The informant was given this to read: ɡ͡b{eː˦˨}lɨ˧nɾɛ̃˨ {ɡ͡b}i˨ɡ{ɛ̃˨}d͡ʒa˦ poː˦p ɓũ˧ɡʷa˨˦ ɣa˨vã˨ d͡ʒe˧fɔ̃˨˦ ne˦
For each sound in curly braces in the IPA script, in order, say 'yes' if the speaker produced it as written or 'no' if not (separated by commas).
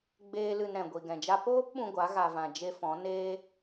no, no, yes